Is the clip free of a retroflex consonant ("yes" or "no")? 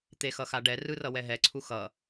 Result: no